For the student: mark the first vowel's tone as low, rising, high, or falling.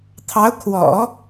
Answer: rising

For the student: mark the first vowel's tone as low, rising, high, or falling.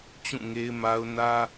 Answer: falling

